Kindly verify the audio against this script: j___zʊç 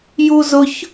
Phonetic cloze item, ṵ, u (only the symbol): u